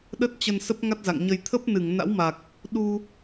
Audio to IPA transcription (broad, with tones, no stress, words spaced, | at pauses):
ɗə˦˥t̚t͡ɕə˧n sə˦˥p̚ŋa˦˥t̚za̰˧˨ŋɲə˧j t̪ʰə˦˥p̚nɨ˧˩ŋ na̰˧˥wma˨˩k̚ | ɗu˧